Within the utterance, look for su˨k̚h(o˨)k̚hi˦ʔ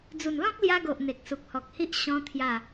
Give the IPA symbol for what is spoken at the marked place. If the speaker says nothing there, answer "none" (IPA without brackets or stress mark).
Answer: ɔ˨